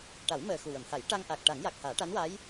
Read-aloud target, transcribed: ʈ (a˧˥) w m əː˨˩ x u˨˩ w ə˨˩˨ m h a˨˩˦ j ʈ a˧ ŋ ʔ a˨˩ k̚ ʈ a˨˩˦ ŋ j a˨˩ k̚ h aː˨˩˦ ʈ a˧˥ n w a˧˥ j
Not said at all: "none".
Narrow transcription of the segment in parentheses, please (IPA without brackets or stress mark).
a˨˩˦